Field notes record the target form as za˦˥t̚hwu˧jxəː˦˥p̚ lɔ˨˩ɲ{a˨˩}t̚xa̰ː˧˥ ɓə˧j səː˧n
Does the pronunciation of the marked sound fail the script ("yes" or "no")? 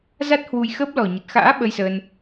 yes